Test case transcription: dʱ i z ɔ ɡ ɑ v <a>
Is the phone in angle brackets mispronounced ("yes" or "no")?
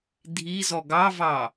yes